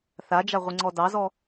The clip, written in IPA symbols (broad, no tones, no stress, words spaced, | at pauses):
θad͡ʒaʁʷiŋ͡ǀɔ dɑzɔ